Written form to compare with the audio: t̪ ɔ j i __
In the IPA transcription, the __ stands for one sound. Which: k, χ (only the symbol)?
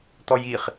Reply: χ